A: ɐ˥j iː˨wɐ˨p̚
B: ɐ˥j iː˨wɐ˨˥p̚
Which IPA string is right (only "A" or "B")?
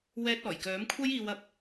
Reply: B